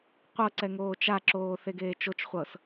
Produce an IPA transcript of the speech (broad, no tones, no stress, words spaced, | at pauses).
qʷɤǀɛ ŋoːt͡ʃaǁoː θeɡeːt͡ʃot͡ʃχʷɤs